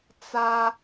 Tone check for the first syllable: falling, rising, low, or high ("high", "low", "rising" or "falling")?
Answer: high